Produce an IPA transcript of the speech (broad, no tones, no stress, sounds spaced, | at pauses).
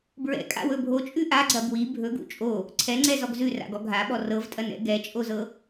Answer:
b ɹ ɛ̰ kʼ a̰ w ɵ bʱ o t͡ʃʼ ʉ ʔ a ɡ͡ǀ ɐ b w i bʱ ɵ ɡ ṵ t͡ʃʼ o | ǀʰ ɛ ŋ͡ǀ ɛ z ɔ ɡ z ʉ r a̰ ɡ ɔ ɡʱ a ɓ ɔ r ɤ v tʼ ɐ n ɛ̰ ɡ ɛ t͡ʃʼ o z ɤ